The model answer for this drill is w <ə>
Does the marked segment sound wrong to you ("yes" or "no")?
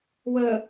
no